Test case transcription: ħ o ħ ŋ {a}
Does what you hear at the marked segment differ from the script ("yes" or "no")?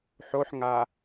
no